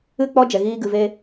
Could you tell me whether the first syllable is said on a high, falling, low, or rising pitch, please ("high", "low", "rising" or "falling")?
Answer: falling